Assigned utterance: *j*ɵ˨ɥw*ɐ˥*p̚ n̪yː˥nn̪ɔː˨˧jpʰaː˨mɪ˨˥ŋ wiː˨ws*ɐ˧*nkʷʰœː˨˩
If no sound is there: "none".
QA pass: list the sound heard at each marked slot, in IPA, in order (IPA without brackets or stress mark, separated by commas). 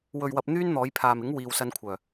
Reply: w, ɐ˨, ɐ˧